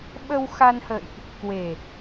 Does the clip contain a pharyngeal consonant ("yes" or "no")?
no